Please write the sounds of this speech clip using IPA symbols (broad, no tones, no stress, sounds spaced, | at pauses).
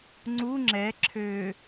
ŋ͡ǀ u ŋ͡ǁ ɛ ǁʰ ø